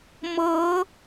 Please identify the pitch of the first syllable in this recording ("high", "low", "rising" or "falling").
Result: rising